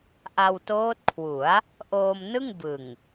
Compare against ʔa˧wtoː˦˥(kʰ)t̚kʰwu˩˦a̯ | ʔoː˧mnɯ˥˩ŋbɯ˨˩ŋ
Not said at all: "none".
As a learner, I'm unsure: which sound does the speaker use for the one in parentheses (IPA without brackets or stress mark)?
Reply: none